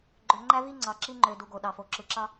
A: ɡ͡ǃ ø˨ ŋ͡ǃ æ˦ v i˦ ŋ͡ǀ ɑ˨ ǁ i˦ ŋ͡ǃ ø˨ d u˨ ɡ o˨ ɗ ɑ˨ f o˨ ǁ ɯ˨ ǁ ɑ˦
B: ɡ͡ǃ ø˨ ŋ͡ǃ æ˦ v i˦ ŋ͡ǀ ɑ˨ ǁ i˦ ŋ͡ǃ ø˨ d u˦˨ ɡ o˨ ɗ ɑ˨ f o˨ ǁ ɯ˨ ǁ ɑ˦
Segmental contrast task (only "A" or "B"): A